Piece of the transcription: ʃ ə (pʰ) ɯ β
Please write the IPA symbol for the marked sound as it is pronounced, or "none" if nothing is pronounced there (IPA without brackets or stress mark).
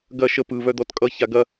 p